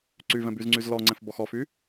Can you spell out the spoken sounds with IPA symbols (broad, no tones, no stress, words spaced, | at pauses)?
ǀyvɛ̃ byzŋ͡ǀyzlɔŋ͡ǀɛ̃f bɔxɔfy